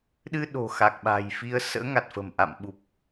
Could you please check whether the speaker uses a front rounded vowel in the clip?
no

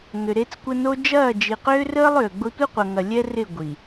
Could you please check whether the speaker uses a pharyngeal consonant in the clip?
no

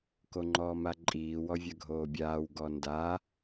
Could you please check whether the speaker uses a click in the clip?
yes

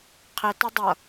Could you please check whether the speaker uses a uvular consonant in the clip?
yes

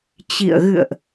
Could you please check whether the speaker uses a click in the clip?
no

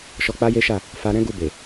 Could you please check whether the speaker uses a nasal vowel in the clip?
yes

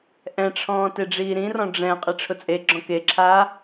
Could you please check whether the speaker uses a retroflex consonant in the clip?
yes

